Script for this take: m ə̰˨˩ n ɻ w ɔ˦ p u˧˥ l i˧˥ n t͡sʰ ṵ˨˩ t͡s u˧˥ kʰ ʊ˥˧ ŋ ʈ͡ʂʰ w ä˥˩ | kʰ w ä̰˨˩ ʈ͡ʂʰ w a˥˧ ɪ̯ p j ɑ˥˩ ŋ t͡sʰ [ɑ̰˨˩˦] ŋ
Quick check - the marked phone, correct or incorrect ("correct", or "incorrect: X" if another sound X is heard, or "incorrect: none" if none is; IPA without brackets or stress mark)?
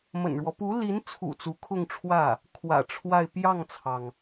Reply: incorrect: ɑ˩